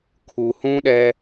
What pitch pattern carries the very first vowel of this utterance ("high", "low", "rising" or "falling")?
low